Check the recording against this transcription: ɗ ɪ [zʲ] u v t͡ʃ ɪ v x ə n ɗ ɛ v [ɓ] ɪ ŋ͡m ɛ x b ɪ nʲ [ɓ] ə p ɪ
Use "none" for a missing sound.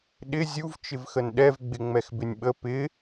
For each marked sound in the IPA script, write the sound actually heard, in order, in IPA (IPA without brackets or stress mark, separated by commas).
zʲ, ɡ͡b, ɓ